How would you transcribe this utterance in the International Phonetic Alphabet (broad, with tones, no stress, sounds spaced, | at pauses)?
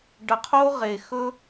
ɖ ə˨ qʰ o˦ ʁ e˨ x ɵ˦